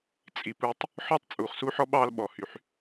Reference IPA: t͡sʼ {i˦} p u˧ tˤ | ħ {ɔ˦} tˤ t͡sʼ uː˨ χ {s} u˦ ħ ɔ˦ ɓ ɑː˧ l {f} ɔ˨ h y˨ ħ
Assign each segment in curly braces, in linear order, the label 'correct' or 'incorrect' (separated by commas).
incorrect, correct, correct, incorrect